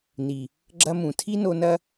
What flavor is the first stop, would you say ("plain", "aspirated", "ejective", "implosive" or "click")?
click